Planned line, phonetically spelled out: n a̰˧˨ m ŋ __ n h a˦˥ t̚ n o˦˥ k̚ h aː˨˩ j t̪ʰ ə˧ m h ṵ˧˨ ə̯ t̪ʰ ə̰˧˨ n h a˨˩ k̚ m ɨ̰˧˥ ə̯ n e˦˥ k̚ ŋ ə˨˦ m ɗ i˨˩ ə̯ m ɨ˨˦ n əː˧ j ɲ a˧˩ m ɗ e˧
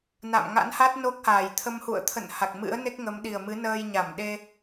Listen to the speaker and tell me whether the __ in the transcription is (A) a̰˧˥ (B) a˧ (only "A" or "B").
A